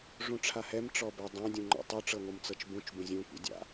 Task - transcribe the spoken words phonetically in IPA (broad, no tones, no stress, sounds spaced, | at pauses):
ʐ ũ ʈ͡ʂʰ a h ɛ m ʈ͡ʂ ɔ b ɛ dˤ ã dʲ ũ ŋ͡ǃ ɔ̰ tˤ u ʈ͡ʂ ɤ ŋʷ ɯ m t͡s ɤ t͡ʃ b ũ t͡ʃ b ũ zʲ ũ kʷ ḭ dʲ a̰